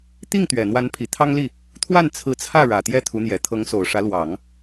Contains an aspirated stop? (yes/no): yes